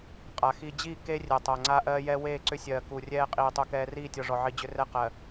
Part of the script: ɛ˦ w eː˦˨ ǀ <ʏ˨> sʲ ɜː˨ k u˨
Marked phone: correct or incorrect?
incorrect: ʏ˦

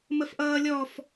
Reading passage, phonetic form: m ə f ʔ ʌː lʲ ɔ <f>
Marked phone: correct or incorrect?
correct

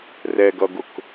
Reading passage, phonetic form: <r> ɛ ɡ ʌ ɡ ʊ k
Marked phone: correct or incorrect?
correct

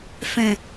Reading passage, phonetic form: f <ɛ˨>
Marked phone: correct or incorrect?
incorrect: ɛ̃˨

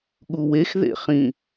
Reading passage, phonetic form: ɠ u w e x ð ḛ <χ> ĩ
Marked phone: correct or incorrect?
correct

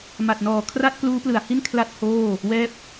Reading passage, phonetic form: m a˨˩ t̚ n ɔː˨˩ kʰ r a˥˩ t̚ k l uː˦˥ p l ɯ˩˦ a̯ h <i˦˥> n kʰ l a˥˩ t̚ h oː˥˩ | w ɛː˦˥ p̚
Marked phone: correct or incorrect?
incorrect: i˥˩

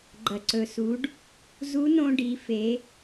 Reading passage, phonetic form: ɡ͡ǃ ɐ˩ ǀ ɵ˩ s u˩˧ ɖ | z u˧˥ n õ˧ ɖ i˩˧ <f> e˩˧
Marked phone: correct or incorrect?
correct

